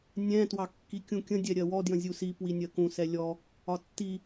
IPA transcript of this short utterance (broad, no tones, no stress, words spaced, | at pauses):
nʲɛ̃ twɑkːikʲũkʲə̃ dʲɛɾʲɜwɔ djə̃zʲusi pwinʲɜkũ sɛlʲɔ | ɒtːi